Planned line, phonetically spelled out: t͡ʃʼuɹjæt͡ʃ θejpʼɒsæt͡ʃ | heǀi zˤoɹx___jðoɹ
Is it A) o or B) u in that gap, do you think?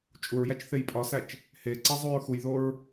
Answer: B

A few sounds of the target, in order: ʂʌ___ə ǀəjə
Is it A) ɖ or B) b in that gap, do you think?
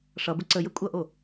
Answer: B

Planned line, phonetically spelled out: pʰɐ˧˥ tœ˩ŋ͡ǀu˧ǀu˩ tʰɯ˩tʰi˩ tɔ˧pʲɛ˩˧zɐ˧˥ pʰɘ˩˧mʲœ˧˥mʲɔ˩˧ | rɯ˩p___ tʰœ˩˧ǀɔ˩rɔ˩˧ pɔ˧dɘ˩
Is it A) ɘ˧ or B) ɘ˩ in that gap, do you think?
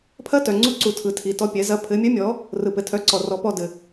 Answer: B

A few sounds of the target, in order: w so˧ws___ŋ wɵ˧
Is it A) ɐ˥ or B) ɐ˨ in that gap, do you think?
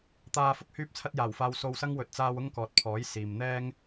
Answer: A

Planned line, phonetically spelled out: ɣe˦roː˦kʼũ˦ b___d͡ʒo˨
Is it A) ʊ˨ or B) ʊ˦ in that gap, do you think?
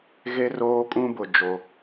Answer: A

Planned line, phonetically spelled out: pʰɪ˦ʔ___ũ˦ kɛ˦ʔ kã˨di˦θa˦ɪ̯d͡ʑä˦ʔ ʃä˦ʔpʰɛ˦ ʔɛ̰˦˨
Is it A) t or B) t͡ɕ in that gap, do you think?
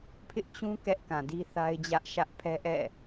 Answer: B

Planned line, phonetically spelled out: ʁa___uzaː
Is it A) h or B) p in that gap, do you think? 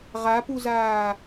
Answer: B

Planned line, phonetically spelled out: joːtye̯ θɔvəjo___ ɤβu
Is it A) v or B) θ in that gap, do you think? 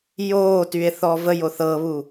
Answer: B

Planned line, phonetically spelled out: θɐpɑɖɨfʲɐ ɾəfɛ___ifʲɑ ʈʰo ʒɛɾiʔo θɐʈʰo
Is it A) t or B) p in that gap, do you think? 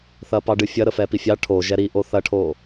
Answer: B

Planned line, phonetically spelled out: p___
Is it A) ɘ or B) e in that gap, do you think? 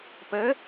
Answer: A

